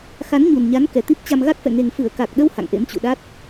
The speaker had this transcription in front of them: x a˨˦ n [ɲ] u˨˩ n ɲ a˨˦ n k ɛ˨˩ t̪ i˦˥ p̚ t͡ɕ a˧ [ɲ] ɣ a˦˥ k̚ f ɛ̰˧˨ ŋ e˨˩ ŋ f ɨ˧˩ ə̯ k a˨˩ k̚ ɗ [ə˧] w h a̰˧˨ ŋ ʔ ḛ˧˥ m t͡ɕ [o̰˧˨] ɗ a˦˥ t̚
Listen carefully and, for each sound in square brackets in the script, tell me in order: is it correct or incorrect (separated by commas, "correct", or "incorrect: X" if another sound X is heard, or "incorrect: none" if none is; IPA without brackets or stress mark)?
correct, incorrect: m, correct, incorrect: ṵ˧˨